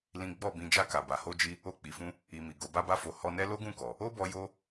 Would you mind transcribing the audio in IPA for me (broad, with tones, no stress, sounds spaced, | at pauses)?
l ĩ˦ ɡ͡b ɔ˦˨ b ĩ˧ d͡ʒ a˧ k a˨ b a˨ h o˧ d͡ʒ i˧ | o˧ k͡p i˨ f ũ˧ | i˨ m i˨ ɡ o˨˦ b a˦ b a˦ f o˧ h ɔ˧ n ɛ˦ l o˦ ɡ ũ˦˨ k ɔ˨ | o˦ b ɔ˧ j o˧